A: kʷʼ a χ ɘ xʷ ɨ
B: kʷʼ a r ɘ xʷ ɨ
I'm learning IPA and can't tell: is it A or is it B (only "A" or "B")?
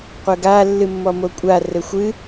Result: B